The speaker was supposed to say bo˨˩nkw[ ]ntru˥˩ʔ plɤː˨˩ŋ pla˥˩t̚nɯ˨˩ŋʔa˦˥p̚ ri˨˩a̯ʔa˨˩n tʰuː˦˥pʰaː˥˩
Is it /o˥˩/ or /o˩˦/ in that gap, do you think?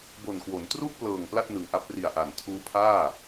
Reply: o˩˦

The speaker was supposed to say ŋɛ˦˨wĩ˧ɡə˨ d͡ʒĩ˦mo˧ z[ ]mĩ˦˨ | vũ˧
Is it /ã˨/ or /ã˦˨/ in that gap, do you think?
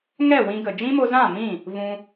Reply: ã˦˨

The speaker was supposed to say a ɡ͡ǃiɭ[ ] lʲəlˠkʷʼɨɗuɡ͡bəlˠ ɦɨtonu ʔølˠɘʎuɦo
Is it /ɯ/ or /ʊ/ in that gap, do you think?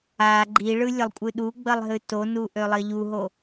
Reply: ɯ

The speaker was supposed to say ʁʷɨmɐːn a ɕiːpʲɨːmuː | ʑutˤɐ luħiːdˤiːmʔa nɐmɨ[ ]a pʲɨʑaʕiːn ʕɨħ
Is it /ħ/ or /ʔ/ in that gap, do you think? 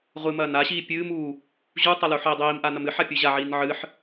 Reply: ħ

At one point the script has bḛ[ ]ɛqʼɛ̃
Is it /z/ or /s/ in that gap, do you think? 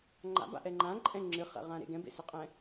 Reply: s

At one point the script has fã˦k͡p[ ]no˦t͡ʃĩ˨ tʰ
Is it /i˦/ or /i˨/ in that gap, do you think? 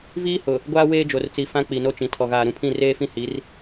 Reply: i˨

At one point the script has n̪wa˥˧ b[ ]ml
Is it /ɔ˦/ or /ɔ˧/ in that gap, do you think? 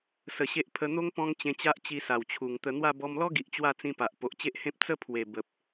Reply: ɔ˧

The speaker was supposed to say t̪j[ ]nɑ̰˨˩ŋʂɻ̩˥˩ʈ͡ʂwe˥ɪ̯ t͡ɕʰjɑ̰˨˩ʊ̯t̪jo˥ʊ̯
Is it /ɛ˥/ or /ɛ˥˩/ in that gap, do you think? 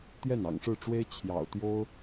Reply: ɛ˥˩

